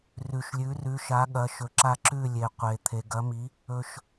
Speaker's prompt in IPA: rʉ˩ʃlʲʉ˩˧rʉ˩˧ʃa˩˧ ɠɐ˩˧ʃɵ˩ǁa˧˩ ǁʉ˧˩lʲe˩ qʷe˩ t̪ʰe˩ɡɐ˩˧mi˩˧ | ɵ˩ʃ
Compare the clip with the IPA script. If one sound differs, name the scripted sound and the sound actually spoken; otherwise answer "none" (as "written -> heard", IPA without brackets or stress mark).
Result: none